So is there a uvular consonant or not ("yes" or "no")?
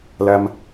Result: no